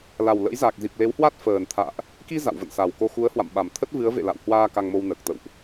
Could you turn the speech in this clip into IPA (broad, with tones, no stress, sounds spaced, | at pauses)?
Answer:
l a˨˩ w l ə̰˧˥ j z a˨˩ k̚ z i˨˩ p̚ l e˨˦ w h w a˦˥ t̚ f əː˨˩ n t̪ʰ a̰ː˧˨ ʔ | k i˧ z a̰˧˨ w v ə̰˧˨ n s a˨˩ w k o˧ x u˨˦ ə̯ h w a̰˧˨ m ɓ a˨˩ m t̪ʰ ə˦˥ t̚ v ɨ˨˦ ə̯ v ḛ˧˨ l a̰˧˨ w h w aː˧ k a˧ ŋ m o˧ w n əː˨˩ k̚ t̪ ə̰˧˨ w ʔ